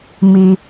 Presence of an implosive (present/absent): absent